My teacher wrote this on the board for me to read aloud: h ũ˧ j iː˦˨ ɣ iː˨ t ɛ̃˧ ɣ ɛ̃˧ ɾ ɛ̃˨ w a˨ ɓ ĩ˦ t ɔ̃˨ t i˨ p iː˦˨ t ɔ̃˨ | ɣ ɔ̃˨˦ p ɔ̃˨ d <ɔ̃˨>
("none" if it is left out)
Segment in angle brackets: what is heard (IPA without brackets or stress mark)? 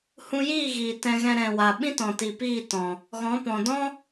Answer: ɔ̃˦